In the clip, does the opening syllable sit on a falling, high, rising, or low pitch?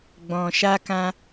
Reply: low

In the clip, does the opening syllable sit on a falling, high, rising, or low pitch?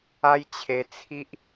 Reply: high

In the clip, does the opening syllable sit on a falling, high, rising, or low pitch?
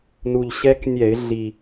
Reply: low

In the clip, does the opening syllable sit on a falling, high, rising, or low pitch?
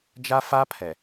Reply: high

